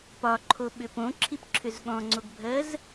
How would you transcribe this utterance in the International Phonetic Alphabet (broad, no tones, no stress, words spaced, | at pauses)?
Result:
pɒǃʰoɓʏ põǁʰipǁʰʏz ɠɔ̃ŋ͡ǀoɡbʱɜz